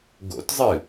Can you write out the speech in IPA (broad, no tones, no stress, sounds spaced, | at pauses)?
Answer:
ɡ o̰ t zˤ ɨ